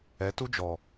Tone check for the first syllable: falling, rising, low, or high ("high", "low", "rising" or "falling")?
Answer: rising